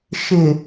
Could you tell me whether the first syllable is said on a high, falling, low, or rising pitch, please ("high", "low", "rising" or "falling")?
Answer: low